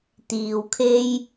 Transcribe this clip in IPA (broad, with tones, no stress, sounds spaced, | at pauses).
t̪ iː˨ w kʰ e˥ j